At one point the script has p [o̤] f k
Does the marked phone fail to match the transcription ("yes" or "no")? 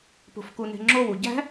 no